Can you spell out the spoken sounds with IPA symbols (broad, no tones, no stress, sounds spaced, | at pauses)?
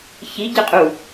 ç i ɟ ɪ qʼ u